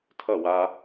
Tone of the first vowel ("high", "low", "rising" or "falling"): falling